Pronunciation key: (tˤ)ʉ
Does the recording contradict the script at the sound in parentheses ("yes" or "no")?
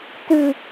yes